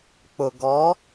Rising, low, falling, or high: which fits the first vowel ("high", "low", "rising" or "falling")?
low